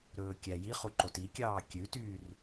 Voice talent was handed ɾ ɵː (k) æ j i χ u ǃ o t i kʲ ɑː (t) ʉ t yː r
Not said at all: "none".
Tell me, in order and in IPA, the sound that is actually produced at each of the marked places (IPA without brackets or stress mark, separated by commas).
kʲ, kʲ